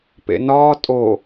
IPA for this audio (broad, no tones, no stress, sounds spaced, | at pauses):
p ḛ n ɒː tʼ o